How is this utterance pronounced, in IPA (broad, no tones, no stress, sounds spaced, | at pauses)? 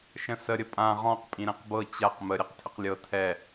ʃ ə̃ s ə ɾʲ ə pʼ ã ʁ ɔ̃ q pʼ ĩ ɾ ɛ̃ q b ɤ t͡ɕ a q m ə ɾʲ ɜ q tʰ ə q lʲ ɤ tʰ ɛ